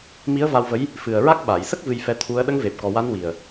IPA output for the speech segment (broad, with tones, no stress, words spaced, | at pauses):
mi˧˥ə̯va˧wvə˧˥j | fɨ˨˩ə̯ɹa˦˥k̚ ɓa˨˩˨jsə˦˥k̚ vɨ˧jfɛ˧˥t̪ʰu˧˥ə̯ ɗə˧˥ŋve˨˩p̚ kɔ˨˩wa˧˥n wi˨˩ə̯